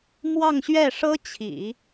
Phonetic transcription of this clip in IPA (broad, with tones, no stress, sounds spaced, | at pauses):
m w ɑ˥˧ ŋ ɕ ɥ ɛ˥˩ ʂ ɤ˥ t͡ɕʰ ḭ˨˩˦